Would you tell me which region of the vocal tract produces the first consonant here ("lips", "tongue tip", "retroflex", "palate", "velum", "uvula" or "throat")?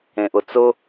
throat